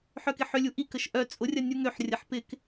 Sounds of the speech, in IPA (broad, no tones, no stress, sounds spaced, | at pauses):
ħ œ k ɪ ħ ʏ lʲ u ʔ i k ə ʃ ʔ œ t͡sʼ ʊ rʲ ɐ nʲ u ŋ ø ħ rʲ ɐ ħ p ɪ k